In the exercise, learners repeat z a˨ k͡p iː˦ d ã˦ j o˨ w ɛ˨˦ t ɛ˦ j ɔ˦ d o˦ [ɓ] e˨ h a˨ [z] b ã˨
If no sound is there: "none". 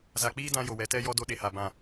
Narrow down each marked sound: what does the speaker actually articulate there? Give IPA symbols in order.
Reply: ɗ, none

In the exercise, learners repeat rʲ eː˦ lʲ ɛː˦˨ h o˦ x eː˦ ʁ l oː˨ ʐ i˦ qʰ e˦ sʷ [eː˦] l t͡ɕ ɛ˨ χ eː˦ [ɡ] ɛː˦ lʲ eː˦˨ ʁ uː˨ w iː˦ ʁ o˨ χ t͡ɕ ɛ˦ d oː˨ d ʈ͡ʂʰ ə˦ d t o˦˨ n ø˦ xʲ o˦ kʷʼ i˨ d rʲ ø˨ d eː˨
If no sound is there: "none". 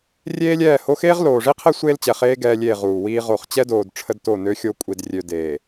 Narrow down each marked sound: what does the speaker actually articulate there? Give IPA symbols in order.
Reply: eː˦, ɡ

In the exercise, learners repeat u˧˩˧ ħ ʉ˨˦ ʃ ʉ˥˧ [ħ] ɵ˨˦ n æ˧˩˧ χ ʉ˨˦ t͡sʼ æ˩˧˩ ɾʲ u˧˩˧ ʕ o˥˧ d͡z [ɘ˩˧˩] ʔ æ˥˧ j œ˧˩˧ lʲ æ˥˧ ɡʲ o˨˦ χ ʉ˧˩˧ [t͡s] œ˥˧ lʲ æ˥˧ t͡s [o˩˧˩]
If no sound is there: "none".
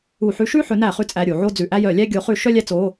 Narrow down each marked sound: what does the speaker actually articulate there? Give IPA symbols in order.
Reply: ħ, ʉ˩˧˩, ʃ, o˩˧˩

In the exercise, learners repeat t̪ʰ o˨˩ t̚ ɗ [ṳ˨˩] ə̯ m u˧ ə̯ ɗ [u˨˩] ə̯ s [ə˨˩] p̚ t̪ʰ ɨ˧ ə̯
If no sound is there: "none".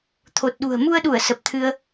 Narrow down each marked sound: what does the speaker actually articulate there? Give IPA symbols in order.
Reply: ṳ˨˩, u˧˩, ə˨˩

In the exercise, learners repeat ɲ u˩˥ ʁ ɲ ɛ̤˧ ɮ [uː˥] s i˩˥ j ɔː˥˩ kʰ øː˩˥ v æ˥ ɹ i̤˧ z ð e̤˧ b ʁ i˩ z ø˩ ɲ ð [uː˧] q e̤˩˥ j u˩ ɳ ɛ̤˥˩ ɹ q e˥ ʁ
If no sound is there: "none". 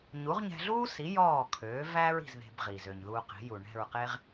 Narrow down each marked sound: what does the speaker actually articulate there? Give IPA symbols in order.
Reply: uː˥, uː˧

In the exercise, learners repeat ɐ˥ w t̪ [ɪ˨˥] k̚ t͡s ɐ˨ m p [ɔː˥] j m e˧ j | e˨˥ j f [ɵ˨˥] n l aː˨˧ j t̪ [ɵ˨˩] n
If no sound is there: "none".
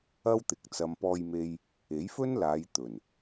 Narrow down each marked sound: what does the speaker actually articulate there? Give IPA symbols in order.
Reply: ɪ˨˥, ɔː˧, ɵ˥, ɵ˨˩

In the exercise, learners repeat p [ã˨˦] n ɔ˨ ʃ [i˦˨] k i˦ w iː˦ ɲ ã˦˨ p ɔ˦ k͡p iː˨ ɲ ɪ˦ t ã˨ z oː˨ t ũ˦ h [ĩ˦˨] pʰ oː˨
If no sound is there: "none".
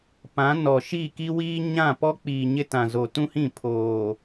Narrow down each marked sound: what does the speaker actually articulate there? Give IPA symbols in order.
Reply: ã˨˦, i˦˨, ĩ˦˨

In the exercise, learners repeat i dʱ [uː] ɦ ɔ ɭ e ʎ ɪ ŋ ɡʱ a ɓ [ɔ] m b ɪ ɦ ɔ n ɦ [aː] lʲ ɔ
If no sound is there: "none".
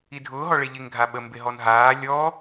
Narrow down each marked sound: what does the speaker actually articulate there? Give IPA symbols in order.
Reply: ʊː, ə, aː

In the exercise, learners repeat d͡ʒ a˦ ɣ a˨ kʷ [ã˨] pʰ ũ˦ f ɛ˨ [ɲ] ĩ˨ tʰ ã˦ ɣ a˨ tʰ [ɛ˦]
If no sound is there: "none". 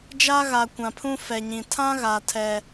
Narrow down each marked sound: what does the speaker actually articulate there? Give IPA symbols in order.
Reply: ã˨, ɲ, ɛ˦

